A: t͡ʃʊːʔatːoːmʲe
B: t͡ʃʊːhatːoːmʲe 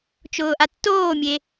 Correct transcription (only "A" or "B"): A